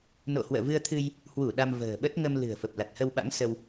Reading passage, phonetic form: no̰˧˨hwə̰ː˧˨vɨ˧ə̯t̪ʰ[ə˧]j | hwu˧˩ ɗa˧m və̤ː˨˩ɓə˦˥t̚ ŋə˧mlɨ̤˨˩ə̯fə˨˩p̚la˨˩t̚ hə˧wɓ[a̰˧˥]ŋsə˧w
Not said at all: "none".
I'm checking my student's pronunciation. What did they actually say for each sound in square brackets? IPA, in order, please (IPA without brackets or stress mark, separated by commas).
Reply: ɨ˧, a̰˧˥